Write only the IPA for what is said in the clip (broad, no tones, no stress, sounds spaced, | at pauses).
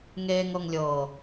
ŋ eː ŋ ɤ ŋ lʲ ɤː